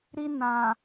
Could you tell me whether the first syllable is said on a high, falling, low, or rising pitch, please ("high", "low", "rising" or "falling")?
high